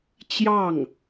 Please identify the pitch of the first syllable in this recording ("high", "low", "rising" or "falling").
falling